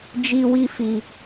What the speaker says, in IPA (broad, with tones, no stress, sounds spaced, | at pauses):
d͡ʒ i˦ w i˦ f i˧